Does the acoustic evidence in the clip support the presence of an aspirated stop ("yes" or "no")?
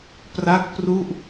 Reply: no